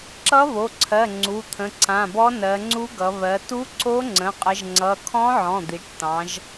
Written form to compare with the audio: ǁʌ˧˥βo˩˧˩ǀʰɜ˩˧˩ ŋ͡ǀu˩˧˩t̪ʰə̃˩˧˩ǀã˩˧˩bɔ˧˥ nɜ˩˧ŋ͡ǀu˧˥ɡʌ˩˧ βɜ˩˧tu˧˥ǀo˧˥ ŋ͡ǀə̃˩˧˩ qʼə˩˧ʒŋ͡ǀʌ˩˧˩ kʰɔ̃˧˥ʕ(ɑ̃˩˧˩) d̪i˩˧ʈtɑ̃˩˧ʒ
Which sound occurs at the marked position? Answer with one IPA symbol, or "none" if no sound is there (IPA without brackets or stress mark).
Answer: ɔ̃˩˧˩